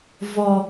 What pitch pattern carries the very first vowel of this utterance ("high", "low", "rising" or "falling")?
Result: high